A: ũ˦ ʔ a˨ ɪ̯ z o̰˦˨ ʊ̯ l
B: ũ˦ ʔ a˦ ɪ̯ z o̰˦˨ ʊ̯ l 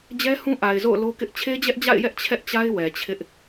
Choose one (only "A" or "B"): A